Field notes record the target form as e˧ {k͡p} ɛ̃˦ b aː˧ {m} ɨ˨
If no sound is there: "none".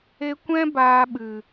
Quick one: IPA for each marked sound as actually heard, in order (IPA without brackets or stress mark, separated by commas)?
kʷ, ɓ